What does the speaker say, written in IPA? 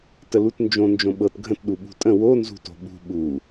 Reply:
t ə l u t n d͡ʒ õ n d͡ʒ õ ɓ ɤ t ɡʱ ə̃ t ɗ u ɓ ṳ tʼ ə̃ w o n z ṳ t o̤ ɓ ṳ ɓ u

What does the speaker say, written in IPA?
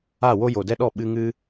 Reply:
a˦˨ w o˦ j o˨ d ɛ˦ ɗ ɔ˦˨ ɓ ɨ˦ ŋ ɨ˦

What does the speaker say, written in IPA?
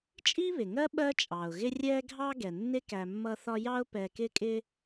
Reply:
t͡ʃʼ i˥ β ɪ˩ ŋ ɜ˥ ɓ ɜ˦ t͡ʃʼ ɑ˩ ʊ̯ ɣ ɪ˦ rʲ ɛ˦ ɡʱ ɑ˦ ɡ ɛ˩ nː ɪ˥ k æ˨ mː ʌ˦ θ ɒ˦ j ɑ˦ ʊ̯ p ɛ˨ k ɪ˦ kʼ ɪ˦

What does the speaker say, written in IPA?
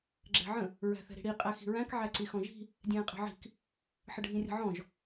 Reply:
ɡ͡ǁ ɛ̤ ʕ ə̃ | ɹ æ̤ θ ɛ̤ ɾ i̤ ɽ i qʼ æ x i̤ ɹ æ̃ k ʕ æ ǀ i x ɔ̃ ʒ i̤ | dʲ ɛ̃ː qʼ ɛ̤ ʕ i̤ k | ħ ə ɖʱ ĩ rʲ ə̤ ʕ ɔ̃ ʒ

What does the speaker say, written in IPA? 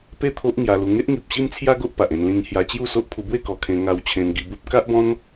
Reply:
p e˥˧ t̪ʰ o˦ ʔ ŋ j a˧ l u˧ ŋ e˦ ʔ ŋ i˨ p̚ ɕ i˦ m t͡sʰ j a˦ ɡ o˦ ʔ p a˨ ʔ ẽ˧ n l ĩ˧ ŋ h j a˧ t͡ɕ j u˥˧ s o˦ ʔ pʰ u˧ b w e˥˧ k ɔ˨˩ kʰ ẽ˧ ŋ a˧ w t͡ɕʰ ẽ˧ n ɡ i˧ b u˦ p̚ k a˦ ʔ b ɔ̃˦ n

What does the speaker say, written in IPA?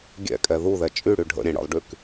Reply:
ɡʲ ɛ̰ kʼ ɛ ð u ð ɛ t͡ʃʼ y ɽ y ɖʱ ə̰ ɾʲ ɛ̃ ɽ ə̰ lˠ ɖ y k

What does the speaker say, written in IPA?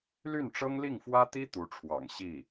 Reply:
l y˥˩ n ʈ͡ʂ ɤ˥ ŋ l i˥˩ ŋ f w ä˥ t̪ i˥ t̪ u˧˥ ʈ͡ʂʰ w ɑ̰˨˩ ŋ ɕ i˥˩

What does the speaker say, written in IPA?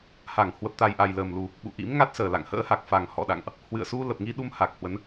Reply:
h a˧˩ ŋ h w ə˨˩ p̚ t̪ a˨˩ j ʔ a˨˩ j l əː˨˩ m l u˨˩ | ɓ ṵ˧˨ ʔ ḭ˧˥ m ŋ a˦˥ t̚ s əː˨˩ l a̰˧˨ ŋ h ə̰ː˧˥ h a˨˩ k̚ f a˨˩ ŋ h ɔ̰˧˨ ɗ a̰˧˨ ŋ ʔ | h w ɨ̰˧˨ ə̯ s u˧ l ə˨˩ p̚ ŋ i˧ ɗ u˧ m h a˨˩ k̚ h w ə˨˦ n

